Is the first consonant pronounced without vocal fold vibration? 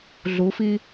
no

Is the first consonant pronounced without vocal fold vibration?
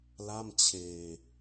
no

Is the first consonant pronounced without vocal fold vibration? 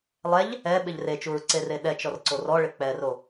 no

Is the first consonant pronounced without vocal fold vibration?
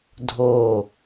no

